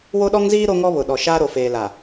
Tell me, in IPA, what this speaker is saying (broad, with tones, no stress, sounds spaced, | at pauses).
w o˦ ɗ ɔ˦ ŋ z iː˦ ɾ o˦ ŋ ɔ˦ β ʊ˨ ɗ ɔ˨ ʃ aː˦ ɾ o˨ f eː˨ l a˨